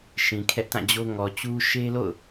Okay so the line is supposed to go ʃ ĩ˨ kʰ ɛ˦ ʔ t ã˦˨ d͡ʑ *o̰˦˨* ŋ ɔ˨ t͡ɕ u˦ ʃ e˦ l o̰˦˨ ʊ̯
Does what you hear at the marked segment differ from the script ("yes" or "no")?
yes